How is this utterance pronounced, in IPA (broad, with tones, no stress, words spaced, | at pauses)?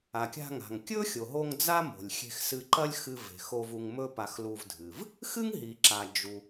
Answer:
a˩kʲa̤˧ŋa̤˩ŋ kʲɵ˥xʲo˩ɦo˧ŋ d͡za˥mo̤˩lʲxʲe̤˧xsɨ˧ ǃɐ˥lʲxɨ˧ve̤˩xo˧v u˧ŋmɵ˥pa˧xlu˧v dʱɨ˩v | xɨ˥ŋ ɦi˩ǁa˩ d͡ʒu˩